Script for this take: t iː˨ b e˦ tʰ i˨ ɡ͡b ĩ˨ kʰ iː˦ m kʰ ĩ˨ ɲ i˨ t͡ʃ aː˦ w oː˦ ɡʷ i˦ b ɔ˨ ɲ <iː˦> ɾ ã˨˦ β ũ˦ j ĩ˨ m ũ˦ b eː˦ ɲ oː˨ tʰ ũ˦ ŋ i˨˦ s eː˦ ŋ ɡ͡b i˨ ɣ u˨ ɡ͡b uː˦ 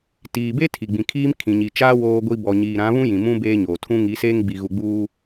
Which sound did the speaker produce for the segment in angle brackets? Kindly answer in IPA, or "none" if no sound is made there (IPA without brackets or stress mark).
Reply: iː˨